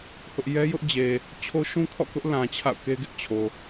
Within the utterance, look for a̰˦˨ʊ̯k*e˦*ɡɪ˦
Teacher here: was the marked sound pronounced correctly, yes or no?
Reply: yes